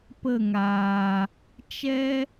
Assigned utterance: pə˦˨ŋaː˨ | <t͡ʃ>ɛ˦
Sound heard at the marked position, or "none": t͡ʃ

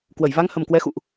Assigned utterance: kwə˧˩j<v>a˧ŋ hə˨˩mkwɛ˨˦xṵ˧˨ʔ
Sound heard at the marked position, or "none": v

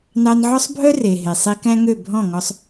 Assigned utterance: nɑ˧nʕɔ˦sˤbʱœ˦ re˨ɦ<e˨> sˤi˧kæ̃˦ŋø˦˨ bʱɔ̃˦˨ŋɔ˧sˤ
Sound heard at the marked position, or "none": e˨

